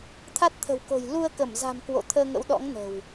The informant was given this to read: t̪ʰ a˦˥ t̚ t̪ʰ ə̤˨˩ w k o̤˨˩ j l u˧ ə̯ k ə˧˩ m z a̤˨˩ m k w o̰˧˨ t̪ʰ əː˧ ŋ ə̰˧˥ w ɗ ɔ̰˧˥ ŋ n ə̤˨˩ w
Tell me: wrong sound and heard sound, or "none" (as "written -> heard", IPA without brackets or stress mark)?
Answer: none